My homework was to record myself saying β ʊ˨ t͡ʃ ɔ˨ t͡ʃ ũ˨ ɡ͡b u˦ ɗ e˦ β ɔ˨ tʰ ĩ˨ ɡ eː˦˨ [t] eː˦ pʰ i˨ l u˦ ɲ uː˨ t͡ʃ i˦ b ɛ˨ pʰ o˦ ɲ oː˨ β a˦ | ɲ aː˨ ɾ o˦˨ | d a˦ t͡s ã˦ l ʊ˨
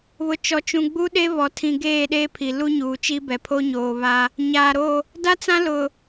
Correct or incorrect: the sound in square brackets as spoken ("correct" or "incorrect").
incorrect